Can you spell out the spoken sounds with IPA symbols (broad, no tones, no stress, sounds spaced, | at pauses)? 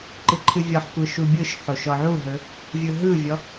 ǃ ɨ ǃʰ ɨ vʲ ɔ ħ kʷ ɯ ʃ u bʲ ɯ ʃ ħ o ʃ ɔ ʕ u ɦ ɵ | vʲ ɯ ɦ ɯ vʲ ɔ